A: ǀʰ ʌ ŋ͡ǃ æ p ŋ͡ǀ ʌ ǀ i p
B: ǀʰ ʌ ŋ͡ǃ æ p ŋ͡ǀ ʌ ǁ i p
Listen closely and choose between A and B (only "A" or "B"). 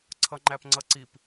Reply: A